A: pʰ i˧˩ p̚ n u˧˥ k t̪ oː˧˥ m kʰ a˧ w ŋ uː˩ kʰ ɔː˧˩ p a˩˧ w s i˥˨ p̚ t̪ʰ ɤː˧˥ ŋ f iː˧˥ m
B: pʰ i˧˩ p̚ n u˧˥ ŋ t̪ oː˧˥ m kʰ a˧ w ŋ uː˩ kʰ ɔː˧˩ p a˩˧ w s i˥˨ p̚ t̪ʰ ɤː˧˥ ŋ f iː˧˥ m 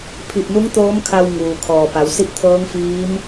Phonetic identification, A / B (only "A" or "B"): B